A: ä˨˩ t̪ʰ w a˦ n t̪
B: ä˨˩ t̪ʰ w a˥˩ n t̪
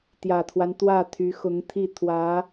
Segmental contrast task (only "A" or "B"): A